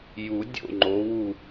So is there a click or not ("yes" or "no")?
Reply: yes